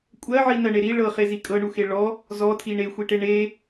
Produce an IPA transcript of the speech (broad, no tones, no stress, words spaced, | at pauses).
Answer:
kʷʼɜʕinɜɳe ɾi ɭɤχezi kʼɤɳuxe ɭɔ | zɔtʰi ɳexʷiʈe ɳe